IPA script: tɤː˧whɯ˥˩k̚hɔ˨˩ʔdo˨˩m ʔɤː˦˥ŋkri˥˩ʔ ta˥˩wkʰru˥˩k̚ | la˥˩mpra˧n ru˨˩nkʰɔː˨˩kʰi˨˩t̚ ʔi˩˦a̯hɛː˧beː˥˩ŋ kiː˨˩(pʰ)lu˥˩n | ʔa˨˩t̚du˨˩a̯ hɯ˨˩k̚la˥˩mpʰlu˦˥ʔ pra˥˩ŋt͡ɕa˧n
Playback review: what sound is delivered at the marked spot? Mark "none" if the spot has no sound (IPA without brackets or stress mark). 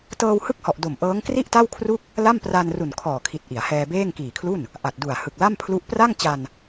kʰ